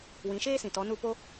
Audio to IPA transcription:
w ĩ˨˦ ʃ eː˦ s ĩ˨ t ɔ˨˦ n u˦˨ p o˦

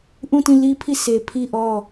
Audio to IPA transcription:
ʔ ũ˦˨ t ĩ˦˨ l i˦ pʰ i˦˨ sʰ e˨ pʰ i˦˨ ʔ ɔ˦˨

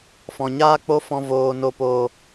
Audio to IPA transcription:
f ɔ̃˨ ɲ aː˦ k͡p o˦ f ɔ̃˧ v oː˨ n o˨ p oː˨

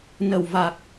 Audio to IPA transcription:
n ə˨˩ w v a˨˩ k̚

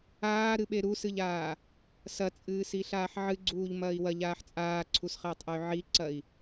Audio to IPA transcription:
aː ɾ ɨ ɓ e ɾ u s ɨ ʎ aː | s ɐ t͡sʼ ɨː s i ɬ aː ħ ʕ ɨ ɡ͡ǀ uː ʎ m ɐː i̯ w ɐ ʎ aː ħ t͡sʼ aː ǀʰ u s χ ɐː tˤ ʔ ɨ y̯ ʕ i ǀ ɐ i̯

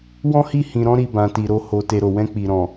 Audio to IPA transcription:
w ɔ̃˦ h i˦˨ h ĩ˨ ɾ ɔ̃˧ ɾ i˨ b ã˨ t i˨ ɾ o˧ h o˨ t e˨ ɾ o˨ w ɛ̃˧ k͡p i˨ ɾ ɔ̃˨

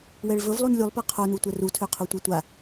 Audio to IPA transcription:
w ɛ ɭ v ɵ v lˠ u n lʲ u lˠ p a qʰ o n u tʷ ɛ r u tʰ ø qʰ o tʷ e tʷ a

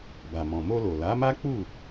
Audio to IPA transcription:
b a˨ m ɔ̃˨ m o˧ l o˨ l a˨˦ m a˦ k͡p u˦˨

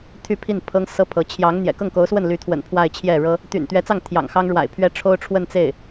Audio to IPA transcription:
t̪ʰ y˥˧ pʰ i˥˩ n pʰ ɤ˥ ŋ s ɤ˥ pʰ ɤ˧˥ t͡ɕʰ j ɑ˧˥ ŋ n̪ j ɛ̰˨˩ k ɤ˥˩ ŋ k o˧˥ ʊ̯ s w ə˥˩ n l y˧˥ t̪ʰ w ə̰˨˩ n pʰ w a˥˧ ɪ̯ t͡ɕʰ j ɛ˥˩ ɻ ɤ˥ | t̪ y̰˨˩ n t̪ ɥ ɛ˧˥ t͡s ɑ˥˩ ŋ t̪ʰ j ɑ̰˨˩ ŋ x ɑ˥ ŋ ɻ w a̰˨˩ ɪ̯ pʰ ɥ ɛ˥ ʈ͡ʂʰ o˥ ʊ̯ ʈ͡ʂʰ w ə˥˧ n t͡s e˥˩ ɪ̯

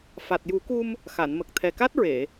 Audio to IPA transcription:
f a˨˩ t̚ j u˨˩˦ k u˧ m | x a˨˩˨ n m ə˨˩ k̚ t̪ʰ ɛ˨˩ k a˦˥ t̚ ɹ e˨˩˨

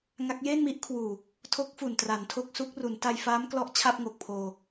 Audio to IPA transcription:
ŋ a˦˥ k̚ j eː˥˩ n m i˦˥ ʔ kʰ w uː˨˩ | tʰ o˦˥ k̚ f u˨˩ n t r a˩˦ n tʰ o˦˥ k̚ s u˦˥ k̚ r u˩˦ n t a˧ j f aː˦˥ m k l ɔ˦˥ ʔ t͡ɕʰ a˥˩ p̚ ŋ o˨˩ k̚ pʰ oː˧

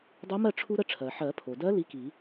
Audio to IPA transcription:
dˤ o˧˥ m ɜ˥˨ ʈ͡ʂʰ u˥ ɾ ə˥ ʈ͡ʂʰ ɜ˩ ħ ɜ˨˩˦ pʰ o˩ d ɜ˧˥ l i˧˥ k i˨˩˦

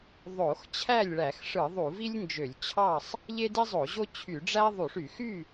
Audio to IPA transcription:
ðˤ o˧˩˧ x t͡ɕʰ æ˥˨ lʲ ɭ æ˧˩˧ x ʂ ɯ˧˩˧ ðˤ u˧˩˧ v i˥ lʲ n d͡ʒ ø˧˩˧ lʲ t͡ɕʰ ɑ˥˨ sˤ | ʎ e˥ d i˥ zˤ o˧˩˧ ʑ o˥ t͡ɕʰ y˧˩˧ ɖ͡ʐ æ˥ ðˤ u˧˩˧ ʂ y˧˩˧ x y˥˨

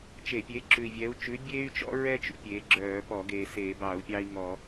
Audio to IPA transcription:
t͡ʃ e˧˩˧ pʲ e˨˥ ǁ ʉ˨˩ i̯ vʲ ɛ˨˥ u̯ t͡ʃ ʉ˨˥ bʲ eː˦ y̯ t͡ʃ ɔ̰˦ ɹ ɛ˦ t͡ʃ ṵ˦ pʲ e˨˥ ɡ͡ǁ œː˧˩˧ p ɔ˧˩˧ ɡ eː˨˩ s eː˧˩˧ b ɑ˧˩˧ u̯ pʲ ɑ˦ i̯ ŋ ɔ˧˩˧

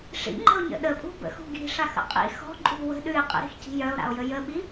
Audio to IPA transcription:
ʂ ḭ ŋ͡ǃ ə̤ o̯ ɲ ə̰ ɗ ə pʼ ṳ b ə̰ x ṳ ɡ i̤ ʂ a x ə̰ qʼ ḭ x ɔ̤ ǃʼ ṳ w ə̤ ɗ ʉ e̯ qʼ ə̰ ɾ i̤ x c i̤ j œ o̯ ɾ a̰ o̯ j ə j ə ɓ i

